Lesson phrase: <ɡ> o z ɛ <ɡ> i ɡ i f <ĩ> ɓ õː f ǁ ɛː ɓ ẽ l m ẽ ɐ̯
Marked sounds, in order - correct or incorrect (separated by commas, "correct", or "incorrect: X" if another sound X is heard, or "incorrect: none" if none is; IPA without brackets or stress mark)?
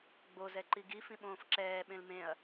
incorrect: ɡ͡b, incorrect: ǃ, correct